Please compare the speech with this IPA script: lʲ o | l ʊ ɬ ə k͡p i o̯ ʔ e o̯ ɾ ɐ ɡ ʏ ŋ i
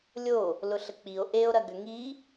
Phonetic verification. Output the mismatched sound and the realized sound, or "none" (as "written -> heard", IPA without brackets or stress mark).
none